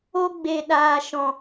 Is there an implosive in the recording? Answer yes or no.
yes